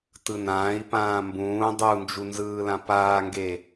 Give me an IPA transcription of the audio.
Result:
t ɯ n ãː i̯ p ãː m b ũː dˤ u n d͡ʒ u n z ɯː l ã p aː ŋ ɡ e

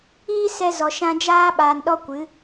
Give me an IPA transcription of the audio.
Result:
iː˦ s ɛ˧ z ɔ˨ ʃ ã˧ d͡ʒ aː˦ ɓ aː˨ n ɗ ɔ˧ kʷ ɨ˨˦

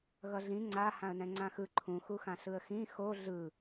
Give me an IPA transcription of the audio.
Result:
ɣ ʌ ɮ ĩ ŋ͡ǀ a h ã ə̯ n ɛ̃ ŋ͡ǀ ã x ɯ ǃʰ ũ x u x ã ɬ ɯ ə̯ x ĩ x o ɮ ɯ

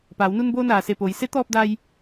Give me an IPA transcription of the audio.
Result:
p aː˩˧ w n u˧ n b oː˧ n aː˩ s e˧˩ p oː˩˧ j s e˧˥ t̪ ɔː˧ p̚ d a˧ j

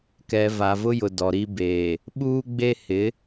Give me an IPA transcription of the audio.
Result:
k ɛ˨ v a˨ v ʊ˦ j ʊ˨ d ɔ˨ ɾ i˦ b eː˨ | ɓ uː˦ ɡ͡b e˦ h ɪ˨˦

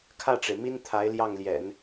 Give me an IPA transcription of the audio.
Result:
kʰ ä˥˩ ʈ͡ʂ e˩ ɪ̯ m i˥ n t̪ʰ a˧˥ ɪ̯ l j ɑ˥˩ ŋ l j ɛ̰˨˩˦ n

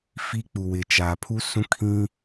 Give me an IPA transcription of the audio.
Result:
f i˦ k͡p u˨ w ɪ˨ t͡ʃ aː˨ pʰ u˦ s ũ˦ kʰ ĩ˦

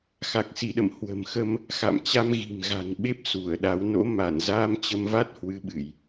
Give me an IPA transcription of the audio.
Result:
x a˨˩ k̚ s i˧˩ ɗ ə̰˧˨ m h w ə̤˨˩ m x ə˧ m | x a̰˧˨ m t͡ɕ a˧ m ɣ i̤˨˩ m ɣ a̤˨˩ n ɓ e˦˥ p̚ s u˧˩ ə̯ ɗ a˨˦ w n o̰˧˥ m a˧˩ n z aː˧ m t͡ɕ ə˧ m v a˦˥ t̚ h w ɨ˨˦ ɓ ɨ˧˩˨ j

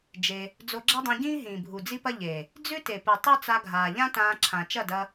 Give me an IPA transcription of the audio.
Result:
d͡ʒ e˧ | d͡z o˧ ɡ͡ǁ a˦ dˤ ẽ˧ ɟ ĩː˦ ɦ ĩː˨ bʱ u˨ d͡z i˦ p ɐ˦ ʎ e˨ | d͡z ʉ˦ t e˨ p ɨ˨ tˤ ʉ˦ t͡s a˧ ɡʱ aː˨ ʎ ã˦ t ãː˧ ǁʰ ã˨ t͡ʃ ɐ˦˨ d ɐ˧

